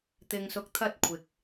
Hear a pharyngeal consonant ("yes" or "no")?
no